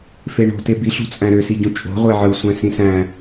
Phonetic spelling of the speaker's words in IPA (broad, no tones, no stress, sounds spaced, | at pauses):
f e ɳ o̤ t e b i ɬ ṳ t͡sʼ æ̃ ɾ ø s i ɟ ũ t͡ʃʼ o̤ ʁʷ e ʕ ɯ sʷ æ̃ s ĩ s æ̃